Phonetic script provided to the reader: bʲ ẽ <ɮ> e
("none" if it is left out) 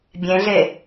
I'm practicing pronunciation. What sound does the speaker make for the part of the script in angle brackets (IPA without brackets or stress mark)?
ɮ